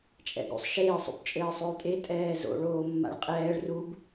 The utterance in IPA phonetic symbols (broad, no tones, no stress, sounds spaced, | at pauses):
t͡ʃʼ ɛ̰ ɡ ṵ sˤ ʃ eː sˤ ṵ b t͡ʃʼ ɘː sˤ o j tʼ e tʼ ɛː z o̰ ɭ oː mː a̰ ɭ qʼ ɛː ɭ r u b